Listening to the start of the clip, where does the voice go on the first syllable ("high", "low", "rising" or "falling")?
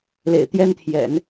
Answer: low